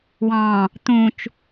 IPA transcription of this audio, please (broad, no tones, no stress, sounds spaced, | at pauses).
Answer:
w ɑ̃ | t̪ ũ t͡ʃ